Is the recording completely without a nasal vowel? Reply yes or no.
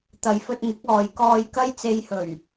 yes